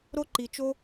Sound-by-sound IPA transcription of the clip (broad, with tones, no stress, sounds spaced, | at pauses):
ɾ o˦ ǃ i˧ t͡ʃ o˦